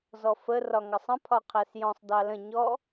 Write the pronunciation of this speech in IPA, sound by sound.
z ɔ f ə r ɒ ŋ ɑ sˤ ə̃ pʰ ɒ qʰ æ s j ɔ̃ sˤ d ɑ l ə̃ ɲ ɔ

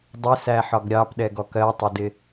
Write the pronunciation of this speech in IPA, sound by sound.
dˤ ɪ s æ ħ ɒ ɡ ɾʲ ɑ p ɗ ɛ ɡ ɔ k ɜ tˤ ɪ d ɪ

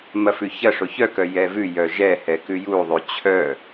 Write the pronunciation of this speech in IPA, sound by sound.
m ɐ f ʉ ç ɐ ʂ o ç œ k œ j ɛ v ʉ j œ ʒ ɛ h ɛ k ʉ j u ðˤ ʉ t͡ɕʰ œ

